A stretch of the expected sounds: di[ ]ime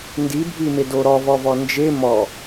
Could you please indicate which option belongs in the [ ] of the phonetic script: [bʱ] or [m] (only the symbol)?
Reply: bʱ